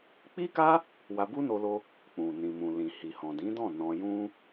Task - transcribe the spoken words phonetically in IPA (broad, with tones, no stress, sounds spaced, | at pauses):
k͡p i˦ k a˦ | w a˧ b u˦ n o˧ l o˧ | k͡p ũ˨ n ĩ˨ m ũ˨ l ĩ˨ h i˨ h ɔ̃˨ d ĩ˨˦ d ɔ̃˦˨ n ɔ̃˧ j ũ˦